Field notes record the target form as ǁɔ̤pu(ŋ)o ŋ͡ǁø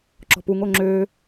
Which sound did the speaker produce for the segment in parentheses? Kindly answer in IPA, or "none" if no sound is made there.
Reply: ŋ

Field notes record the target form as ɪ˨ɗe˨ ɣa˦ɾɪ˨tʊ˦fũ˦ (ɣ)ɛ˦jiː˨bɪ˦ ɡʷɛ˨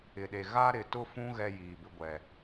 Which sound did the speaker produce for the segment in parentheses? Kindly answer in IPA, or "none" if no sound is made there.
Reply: ɣ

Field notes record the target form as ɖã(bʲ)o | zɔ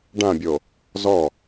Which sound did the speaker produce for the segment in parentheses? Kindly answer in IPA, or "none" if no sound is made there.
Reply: bʲ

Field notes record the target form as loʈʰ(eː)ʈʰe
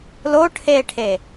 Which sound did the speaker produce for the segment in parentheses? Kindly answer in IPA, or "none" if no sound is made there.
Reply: eː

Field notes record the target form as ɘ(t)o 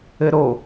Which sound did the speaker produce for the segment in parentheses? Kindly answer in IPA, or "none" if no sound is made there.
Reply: ɾ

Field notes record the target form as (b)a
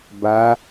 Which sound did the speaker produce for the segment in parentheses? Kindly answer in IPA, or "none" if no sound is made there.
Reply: b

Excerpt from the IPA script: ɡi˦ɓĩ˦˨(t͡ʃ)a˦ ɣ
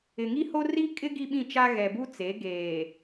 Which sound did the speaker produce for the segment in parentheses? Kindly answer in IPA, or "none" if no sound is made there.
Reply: t͡ʃ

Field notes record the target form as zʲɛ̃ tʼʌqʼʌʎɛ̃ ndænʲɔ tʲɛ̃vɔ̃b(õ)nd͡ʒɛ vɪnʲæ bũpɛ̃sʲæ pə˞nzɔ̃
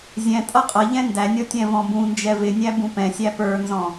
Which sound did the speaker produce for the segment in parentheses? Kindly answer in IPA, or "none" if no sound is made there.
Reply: ũ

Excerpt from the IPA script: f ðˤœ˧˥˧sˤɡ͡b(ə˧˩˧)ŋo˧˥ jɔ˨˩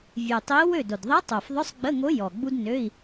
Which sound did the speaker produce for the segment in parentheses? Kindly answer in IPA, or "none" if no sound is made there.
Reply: ə˧˥˧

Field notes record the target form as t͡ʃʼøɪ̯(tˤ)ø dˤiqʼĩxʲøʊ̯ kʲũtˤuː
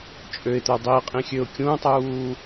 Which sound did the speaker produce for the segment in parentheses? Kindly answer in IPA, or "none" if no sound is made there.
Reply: t̪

